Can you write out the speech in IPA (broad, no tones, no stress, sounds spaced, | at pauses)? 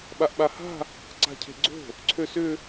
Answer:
ɓ a ʔ ɓ a h a̤ | ǀ a̤ cʰ e̤ ɡ͡ǀ o̤ | ǀʰ ø s ʏ